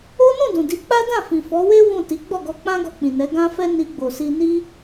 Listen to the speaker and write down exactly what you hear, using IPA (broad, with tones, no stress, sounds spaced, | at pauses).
o˦ n ũ˦˨ d ũ˨ d i˨˦ k͡p a˦ d ã˦˨ f ĩ˨ f ɔ˨˦ w e˦ w ũ˦˨ t i˨˦ ɡ͡b ɔ˦˨ ɡ ɔ˧ k͡p ã˦ ɡ ɔ˧ k͡p ĩ˨ n ɛ˨˦ ɡ ã˦ f ɛ˦ n i˧ ɡ͡b o˨ s i˧ n i˦